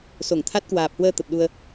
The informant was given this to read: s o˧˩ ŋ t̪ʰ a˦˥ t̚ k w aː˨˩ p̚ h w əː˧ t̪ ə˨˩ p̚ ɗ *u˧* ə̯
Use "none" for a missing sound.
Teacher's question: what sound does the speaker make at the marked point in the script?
u˧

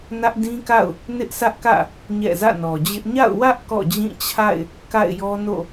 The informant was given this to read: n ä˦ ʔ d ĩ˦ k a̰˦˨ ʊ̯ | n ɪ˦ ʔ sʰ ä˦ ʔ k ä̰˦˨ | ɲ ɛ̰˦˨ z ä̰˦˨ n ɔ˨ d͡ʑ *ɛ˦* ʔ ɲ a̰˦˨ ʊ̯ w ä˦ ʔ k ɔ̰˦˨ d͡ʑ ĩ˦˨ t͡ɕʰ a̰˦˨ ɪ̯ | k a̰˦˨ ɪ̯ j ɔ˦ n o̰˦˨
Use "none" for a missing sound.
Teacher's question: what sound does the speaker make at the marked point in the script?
ɪ˦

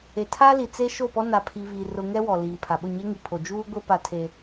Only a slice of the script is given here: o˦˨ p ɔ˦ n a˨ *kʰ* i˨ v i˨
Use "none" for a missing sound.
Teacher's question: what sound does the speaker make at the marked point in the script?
pʰ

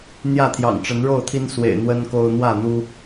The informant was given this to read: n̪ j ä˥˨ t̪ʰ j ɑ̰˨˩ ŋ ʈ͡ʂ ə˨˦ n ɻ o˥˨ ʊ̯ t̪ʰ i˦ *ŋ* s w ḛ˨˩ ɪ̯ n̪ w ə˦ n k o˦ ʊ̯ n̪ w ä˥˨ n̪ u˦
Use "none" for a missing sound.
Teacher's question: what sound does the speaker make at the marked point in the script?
n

